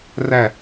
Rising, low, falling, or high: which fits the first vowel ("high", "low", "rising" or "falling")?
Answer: falling